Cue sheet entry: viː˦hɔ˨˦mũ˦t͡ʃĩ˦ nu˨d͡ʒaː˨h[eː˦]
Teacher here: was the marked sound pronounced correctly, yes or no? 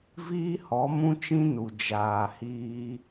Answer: no